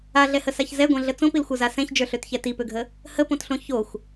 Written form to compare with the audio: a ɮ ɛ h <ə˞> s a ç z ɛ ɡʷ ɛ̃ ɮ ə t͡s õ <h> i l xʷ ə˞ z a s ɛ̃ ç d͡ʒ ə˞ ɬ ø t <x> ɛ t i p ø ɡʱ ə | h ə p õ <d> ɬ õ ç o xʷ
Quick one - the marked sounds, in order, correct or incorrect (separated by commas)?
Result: incorrect, incorrect, incorrect, incorrect